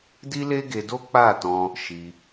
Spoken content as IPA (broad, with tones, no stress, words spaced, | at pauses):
di˦le˦ɡe˧do˦ k͡pa˦˨tɔ̃˧ | ʃi˧